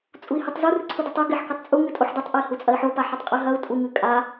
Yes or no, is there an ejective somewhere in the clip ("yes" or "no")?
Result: yes